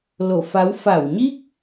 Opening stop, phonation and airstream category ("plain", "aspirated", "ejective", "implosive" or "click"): plain